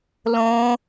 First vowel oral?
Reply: no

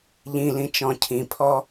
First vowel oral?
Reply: no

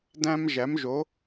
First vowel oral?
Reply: no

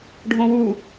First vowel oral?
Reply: no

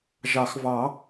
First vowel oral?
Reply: yes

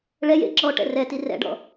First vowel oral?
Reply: yes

